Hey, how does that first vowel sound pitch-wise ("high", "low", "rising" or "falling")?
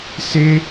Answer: high